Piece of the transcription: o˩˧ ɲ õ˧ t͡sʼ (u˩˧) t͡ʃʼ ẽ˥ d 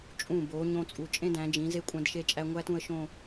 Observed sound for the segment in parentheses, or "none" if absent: u˩˧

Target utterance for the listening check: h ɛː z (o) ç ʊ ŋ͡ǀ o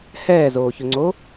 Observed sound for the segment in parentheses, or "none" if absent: oː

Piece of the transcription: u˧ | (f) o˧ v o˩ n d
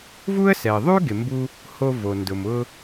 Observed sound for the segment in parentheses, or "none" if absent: h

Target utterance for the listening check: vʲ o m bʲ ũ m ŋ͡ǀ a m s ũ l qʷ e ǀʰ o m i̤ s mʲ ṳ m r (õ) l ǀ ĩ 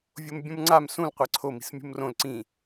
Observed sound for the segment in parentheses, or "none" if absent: õ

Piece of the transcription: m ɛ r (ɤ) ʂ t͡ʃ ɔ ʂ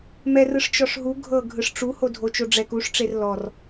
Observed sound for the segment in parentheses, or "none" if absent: ɯ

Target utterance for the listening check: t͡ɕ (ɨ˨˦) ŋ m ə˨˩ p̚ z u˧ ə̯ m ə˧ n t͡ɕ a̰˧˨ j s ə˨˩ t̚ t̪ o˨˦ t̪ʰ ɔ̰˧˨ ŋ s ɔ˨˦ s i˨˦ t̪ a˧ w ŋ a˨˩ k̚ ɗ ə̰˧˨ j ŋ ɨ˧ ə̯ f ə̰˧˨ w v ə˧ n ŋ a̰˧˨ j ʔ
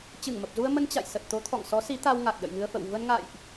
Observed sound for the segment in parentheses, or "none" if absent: ɨ˧˩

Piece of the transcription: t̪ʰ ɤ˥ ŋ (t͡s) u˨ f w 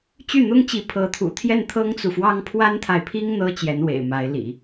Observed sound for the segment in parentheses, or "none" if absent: t͡s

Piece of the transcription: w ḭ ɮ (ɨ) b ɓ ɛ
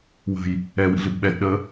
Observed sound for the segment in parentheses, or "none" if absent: ɨ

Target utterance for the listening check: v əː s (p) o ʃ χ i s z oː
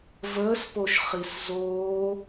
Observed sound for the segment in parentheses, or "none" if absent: p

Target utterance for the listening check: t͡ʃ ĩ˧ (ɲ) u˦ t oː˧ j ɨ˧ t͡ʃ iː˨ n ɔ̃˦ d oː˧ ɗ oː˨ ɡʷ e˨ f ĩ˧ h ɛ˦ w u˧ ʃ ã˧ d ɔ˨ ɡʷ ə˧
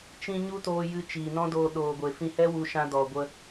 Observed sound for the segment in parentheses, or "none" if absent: ɲ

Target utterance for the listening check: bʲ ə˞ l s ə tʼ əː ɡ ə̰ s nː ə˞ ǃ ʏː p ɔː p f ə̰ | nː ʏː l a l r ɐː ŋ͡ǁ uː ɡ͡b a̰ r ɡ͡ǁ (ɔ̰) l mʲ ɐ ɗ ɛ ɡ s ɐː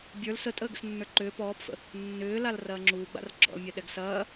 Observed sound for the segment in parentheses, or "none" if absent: ɔ̰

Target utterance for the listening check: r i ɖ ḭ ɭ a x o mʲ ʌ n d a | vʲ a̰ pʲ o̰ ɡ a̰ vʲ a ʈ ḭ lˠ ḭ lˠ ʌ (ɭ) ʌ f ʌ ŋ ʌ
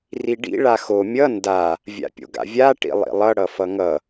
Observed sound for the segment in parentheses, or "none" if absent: ɽ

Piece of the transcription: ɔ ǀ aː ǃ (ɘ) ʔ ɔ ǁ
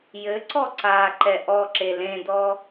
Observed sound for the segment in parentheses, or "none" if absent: ɛ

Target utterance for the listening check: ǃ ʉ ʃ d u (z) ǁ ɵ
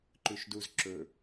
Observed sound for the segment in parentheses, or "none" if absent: z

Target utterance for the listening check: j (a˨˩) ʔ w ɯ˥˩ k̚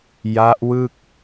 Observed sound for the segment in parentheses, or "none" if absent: a˦˥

